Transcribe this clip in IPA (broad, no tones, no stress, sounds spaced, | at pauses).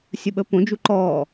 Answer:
sʲ ə ɓ ə p õ d͡ʒ u ǃ ɔː